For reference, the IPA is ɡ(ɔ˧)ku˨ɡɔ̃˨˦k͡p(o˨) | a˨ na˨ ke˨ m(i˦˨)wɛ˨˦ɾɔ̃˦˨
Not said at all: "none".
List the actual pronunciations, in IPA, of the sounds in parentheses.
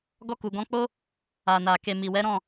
ɔ˧, o˦, i˨

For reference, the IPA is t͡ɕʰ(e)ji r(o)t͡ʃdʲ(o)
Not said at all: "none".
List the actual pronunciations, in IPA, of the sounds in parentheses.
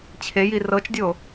e, ɤ, o

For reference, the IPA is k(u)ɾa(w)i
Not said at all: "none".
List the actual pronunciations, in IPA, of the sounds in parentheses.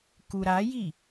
u, j

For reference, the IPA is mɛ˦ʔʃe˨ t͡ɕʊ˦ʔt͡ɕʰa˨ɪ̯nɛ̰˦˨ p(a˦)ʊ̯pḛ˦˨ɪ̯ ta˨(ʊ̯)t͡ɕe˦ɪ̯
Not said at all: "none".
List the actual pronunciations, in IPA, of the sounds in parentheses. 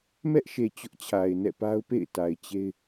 a˦, ɪ̯

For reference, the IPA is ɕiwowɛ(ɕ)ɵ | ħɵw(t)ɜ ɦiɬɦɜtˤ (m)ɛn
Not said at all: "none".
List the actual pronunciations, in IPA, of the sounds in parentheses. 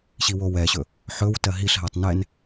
ɕ, t, n

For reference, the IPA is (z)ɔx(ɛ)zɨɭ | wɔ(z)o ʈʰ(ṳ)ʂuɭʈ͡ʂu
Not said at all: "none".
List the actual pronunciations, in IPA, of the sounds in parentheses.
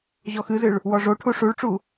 ʑ, ɨ, ʐ, u

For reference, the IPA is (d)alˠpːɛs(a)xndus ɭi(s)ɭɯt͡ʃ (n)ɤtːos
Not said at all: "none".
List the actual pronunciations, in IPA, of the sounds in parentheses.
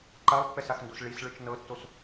ǃ, a, s, n

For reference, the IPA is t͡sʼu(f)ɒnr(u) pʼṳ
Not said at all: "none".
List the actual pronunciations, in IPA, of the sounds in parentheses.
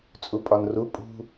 pʼ, u

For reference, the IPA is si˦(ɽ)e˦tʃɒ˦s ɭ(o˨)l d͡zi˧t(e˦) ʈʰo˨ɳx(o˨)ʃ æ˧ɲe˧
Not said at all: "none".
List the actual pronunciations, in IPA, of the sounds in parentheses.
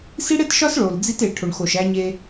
ɽ, o˨, e˨, o˨

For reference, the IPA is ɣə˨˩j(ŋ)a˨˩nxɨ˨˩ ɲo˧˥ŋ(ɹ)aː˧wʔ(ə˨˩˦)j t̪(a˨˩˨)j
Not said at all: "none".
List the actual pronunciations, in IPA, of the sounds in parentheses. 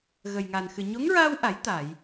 ŋ, ɹ, a˨˩˦, a˨˩˨

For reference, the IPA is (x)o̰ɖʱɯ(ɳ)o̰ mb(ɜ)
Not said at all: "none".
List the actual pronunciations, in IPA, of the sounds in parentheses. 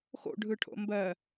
x, ʈʰ, ɜ

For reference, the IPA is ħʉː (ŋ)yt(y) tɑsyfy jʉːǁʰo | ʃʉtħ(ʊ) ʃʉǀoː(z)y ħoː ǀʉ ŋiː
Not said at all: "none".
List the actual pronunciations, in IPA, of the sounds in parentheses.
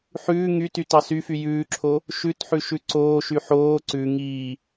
ŋ, y, ʉ, ʃ

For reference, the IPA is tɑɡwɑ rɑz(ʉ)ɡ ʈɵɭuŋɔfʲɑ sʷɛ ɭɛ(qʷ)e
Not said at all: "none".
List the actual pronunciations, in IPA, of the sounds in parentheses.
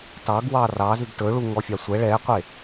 ʉ, qʷ

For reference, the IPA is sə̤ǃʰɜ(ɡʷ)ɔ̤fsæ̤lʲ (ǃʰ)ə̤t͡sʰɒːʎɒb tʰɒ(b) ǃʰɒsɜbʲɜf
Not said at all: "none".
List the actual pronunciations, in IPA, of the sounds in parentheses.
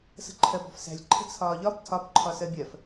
b, ǃʰ, b

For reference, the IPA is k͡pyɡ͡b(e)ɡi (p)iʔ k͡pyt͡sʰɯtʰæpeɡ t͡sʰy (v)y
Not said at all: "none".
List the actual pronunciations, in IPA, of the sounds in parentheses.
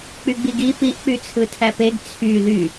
i, p, ð

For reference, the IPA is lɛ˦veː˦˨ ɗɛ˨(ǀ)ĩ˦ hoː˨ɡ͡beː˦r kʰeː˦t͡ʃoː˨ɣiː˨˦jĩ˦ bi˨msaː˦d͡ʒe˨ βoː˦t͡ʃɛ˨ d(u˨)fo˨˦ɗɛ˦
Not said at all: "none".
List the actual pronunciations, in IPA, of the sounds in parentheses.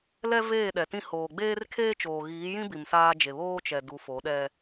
t, u˨˦

